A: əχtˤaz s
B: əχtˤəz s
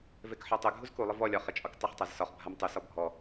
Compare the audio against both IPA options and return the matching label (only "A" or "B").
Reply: A